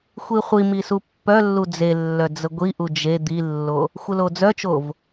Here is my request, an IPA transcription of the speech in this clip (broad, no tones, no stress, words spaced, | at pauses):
xʷiχʷimi supːœlːu d͡zelːœ d͡zəɡʷiʔu d͡ʒe d̪ilːo | xʷəlod͡zœt͡ʃov